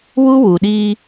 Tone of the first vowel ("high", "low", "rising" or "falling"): high